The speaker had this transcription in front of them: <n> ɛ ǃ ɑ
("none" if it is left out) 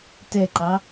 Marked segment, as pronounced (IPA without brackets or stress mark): t